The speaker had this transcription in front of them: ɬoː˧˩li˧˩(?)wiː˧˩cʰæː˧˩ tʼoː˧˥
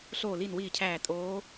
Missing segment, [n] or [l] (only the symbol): n